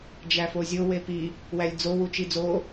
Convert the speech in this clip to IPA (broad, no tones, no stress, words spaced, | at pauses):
d͡ʒæfozʲo wepi | wælʲd͡zo wut͡ʃid͡zo